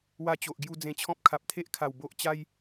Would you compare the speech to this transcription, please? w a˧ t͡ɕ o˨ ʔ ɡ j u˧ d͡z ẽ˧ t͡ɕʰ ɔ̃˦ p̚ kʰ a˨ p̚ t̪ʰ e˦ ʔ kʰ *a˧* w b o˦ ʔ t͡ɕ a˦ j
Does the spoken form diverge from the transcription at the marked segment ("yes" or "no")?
yes